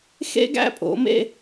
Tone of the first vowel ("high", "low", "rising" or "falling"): high